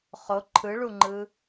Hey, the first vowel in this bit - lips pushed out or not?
yes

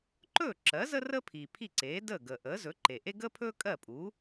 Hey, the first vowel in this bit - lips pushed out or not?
yes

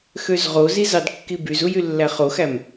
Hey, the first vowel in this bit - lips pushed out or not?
yes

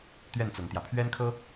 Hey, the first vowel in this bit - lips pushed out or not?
no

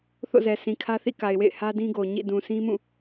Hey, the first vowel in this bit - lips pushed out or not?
yes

